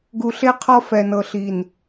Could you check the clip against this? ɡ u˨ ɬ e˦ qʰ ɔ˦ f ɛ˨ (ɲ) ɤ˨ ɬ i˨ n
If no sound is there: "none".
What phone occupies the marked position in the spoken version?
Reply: n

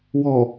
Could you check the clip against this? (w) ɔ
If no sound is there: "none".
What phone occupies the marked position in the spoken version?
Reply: w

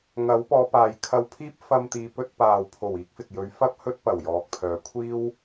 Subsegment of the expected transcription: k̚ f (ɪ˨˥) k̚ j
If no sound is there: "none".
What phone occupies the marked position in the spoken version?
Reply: ɪ˨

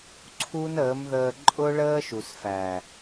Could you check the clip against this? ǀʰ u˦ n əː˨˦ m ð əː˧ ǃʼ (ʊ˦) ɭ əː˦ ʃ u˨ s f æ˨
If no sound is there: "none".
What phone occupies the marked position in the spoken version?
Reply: ʊ˦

